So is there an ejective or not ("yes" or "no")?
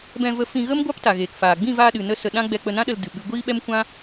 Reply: no